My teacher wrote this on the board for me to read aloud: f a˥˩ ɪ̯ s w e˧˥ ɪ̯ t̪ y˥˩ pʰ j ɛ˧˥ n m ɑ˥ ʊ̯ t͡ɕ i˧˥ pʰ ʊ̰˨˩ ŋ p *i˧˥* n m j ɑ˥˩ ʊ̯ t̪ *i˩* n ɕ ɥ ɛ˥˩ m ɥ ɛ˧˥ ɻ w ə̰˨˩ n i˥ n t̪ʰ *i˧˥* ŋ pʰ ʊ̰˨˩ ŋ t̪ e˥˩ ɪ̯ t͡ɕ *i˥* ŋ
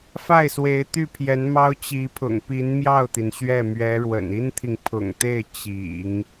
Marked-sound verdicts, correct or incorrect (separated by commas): correct, correct, incorrect, incorrect